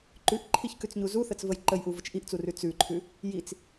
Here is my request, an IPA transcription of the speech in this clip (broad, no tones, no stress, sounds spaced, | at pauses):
ǃ ʉ ʔ ǃʰ i ç k ʉ t͡s ɲ u z u θ ə t͡s v ə j ǃ ə j ʔ u v ə t͡ʃ ʔ i ʔ t͡s u r ʉ t͡s ʉ ǃʰ ʉ | j i t͡s